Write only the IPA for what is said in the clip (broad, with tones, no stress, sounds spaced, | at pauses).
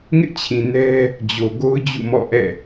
ŋ ɪ˦ ʔ t͡ɕʰ ĩ˨ n ɛ˦ | d͡ʑ o˨ ɡ o˦ ʊ̯ d͡ʑ ṵ˦˨ m ɔ̰˦˨ ʔ ɛ̰˦˨